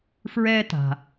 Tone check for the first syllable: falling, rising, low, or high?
high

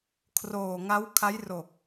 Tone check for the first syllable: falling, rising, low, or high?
low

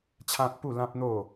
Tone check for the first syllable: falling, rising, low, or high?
high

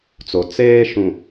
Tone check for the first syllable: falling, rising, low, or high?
low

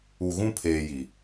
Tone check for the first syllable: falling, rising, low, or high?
low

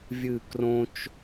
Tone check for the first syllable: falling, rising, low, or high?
falling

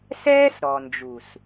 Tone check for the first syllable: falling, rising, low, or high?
high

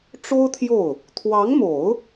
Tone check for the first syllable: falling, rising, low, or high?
high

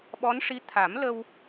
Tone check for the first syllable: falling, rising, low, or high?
rising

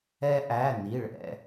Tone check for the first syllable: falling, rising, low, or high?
high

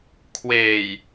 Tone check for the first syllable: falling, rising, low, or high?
low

